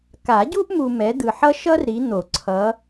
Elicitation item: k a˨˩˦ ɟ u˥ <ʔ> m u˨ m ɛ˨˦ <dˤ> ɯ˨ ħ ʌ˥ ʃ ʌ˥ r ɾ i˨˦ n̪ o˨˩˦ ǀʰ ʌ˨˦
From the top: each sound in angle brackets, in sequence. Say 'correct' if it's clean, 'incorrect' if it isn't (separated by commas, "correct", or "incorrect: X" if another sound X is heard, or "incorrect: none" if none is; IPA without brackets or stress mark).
correct, incorrect: d̪